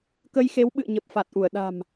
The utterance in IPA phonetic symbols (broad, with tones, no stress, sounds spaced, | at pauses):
k ə˧ j x e˨˦ w ɓ ɨ̰˧˨ ə̯ ɲ ə˨˩ p̚ f a˨˩ t̚ ʔ u˧˩ ə̯ ɗ a̤˨˩ m